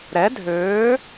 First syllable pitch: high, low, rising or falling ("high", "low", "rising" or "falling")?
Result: rising